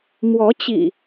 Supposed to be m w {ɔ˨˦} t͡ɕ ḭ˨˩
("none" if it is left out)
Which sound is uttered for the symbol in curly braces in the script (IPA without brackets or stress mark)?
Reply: ɔ˨˦